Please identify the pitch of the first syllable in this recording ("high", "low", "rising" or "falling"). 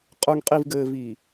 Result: low